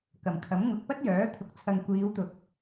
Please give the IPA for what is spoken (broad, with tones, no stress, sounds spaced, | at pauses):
k ɐ˨˩ m kʰ ɐ˨˥ m ŋ ʊ˨ k̚ p ɐ˥ t̚ j œː˨˥ t̪ʰ ʊ˨˥ k̚ t͡sʰ ɐ˨ ŋ kʷ iː˨˧ w t̪ ʊ˨ k̚